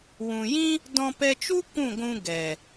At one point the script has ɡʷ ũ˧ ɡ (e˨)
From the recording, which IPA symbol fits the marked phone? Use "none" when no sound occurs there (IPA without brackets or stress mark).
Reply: ɛ˨